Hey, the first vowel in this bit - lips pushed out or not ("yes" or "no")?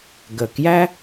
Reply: no